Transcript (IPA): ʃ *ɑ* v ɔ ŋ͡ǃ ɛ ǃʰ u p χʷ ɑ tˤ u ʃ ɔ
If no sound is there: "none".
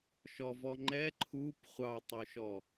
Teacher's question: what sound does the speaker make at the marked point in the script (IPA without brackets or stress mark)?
ɔ